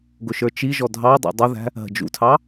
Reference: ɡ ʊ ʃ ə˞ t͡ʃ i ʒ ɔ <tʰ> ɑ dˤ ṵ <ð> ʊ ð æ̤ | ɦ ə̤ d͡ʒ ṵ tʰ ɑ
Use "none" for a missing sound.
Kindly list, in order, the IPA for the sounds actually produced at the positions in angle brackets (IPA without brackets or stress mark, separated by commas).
dʱ, dˤ